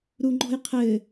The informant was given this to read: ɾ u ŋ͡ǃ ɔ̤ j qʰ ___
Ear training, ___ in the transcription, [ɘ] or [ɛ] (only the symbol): ɘ